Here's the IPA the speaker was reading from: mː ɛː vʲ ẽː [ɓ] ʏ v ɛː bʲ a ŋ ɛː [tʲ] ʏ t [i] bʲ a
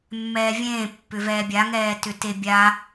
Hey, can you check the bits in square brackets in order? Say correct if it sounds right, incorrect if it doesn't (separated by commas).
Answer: incorrect, incorrect, incorrect